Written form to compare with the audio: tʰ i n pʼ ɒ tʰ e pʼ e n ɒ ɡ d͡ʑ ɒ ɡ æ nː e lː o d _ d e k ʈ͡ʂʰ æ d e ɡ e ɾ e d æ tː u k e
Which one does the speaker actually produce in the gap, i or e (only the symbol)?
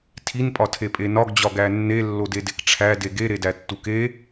e